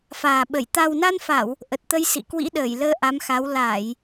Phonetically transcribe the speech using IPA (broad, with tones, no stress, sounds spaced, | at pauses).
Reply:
f aː˨˩ ɓ ə˧˩ j t̪ a˨˩ w n a˧ n f a˧˩˨ w | ʔ ə˨˩ t̚ t̪ ə˧ j s ḭ˧˨ k w ḭ˧˥ ɗ əː˧˩ j l əː˧ ʔ a˨˦ m x a˨˦ w l aː˧˩˨ j